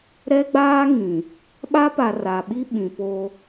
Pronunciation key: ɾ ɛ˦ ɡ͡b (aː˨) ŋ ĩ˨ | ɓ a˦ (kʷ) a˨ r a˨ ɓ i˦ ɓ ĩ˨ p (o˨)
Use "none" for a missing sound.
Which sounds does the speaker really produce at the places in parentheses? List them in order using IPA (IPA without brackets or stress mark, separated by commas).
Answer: aː˦, p, o˦